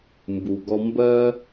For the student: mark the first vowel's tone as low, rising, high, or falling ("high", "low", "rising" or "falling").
low